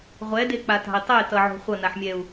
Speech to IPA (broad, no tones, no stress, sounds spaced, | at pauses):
ʁʷ ɛ d e k͡p a t a̤ i̯ tˤ e t ʌ ʕ o̤ χʷ ʌ n a ħ mʲ ɛ u̯